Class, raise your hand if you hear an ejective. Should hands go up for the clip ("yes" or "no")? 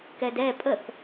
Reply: yes